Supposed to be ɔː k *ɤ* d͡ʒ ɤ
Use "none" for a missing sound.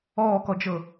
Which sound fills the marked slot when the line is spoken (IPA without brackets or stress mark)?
ɔ